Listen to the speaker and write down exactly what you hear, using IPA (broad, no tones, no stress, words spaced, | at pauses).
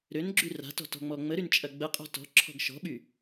ɾønɡ͡ǁy ra̤tɔ̤tɔ̤ŋ͡mɔ ŋ͡məɾynt͡ʃʼɐ ɡ͡bəqʼɔ̤ tɔ̤ǁʰɔ̤ɡ ʃɔ̤ɓy